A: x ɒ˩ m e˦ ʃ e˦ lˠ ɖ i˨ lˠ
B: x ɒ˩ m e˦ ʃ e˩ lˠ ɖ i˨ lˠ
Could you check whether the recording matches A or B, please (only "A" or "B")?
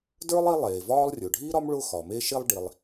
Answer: A